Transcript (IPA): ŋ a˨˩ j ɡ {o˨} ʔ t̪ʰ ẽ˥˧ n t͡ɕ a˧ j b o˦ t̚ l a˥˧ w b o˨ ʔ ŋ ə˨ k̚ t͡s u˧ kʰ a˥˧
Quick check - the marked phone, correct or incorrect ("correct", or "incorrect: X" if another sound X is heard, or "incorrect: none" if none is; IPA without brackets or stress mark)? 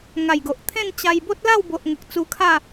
correct